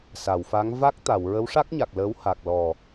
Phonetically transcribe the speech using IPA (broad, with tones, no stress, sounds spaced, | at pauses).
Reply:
s a˨˩˨ w f a˧˥ ŋ v a˦˥ k̚ t̪ a˨˩˨ w ɹ ə˧˥ w ʂ a˦˥ k̚ ɲ a˨˩ k̚ l əː˧˥ w h a˨˩ k̚ l ɔ˨˩